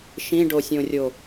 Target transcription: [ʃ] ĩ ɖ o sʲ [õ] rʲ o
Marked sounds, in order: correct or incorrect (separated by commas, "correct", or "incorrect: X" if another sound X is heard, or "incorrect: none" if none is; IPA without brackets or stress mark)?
correct, correct